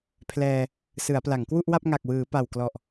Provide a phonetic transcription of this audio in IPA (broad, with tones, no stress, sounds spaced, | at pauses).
pʰ l ɛː˧ | s ɯ˩˦ a̯ p l a˩˦ ŋ k w u˥˩ ʔ w a˥˩ p̚ ŋ a˨˩ k̚ w ɯː˩˦ p a˨˩ w k l ɔ˨˩ ʔ